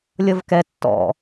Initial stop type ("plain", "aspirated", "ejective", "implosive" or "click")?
plain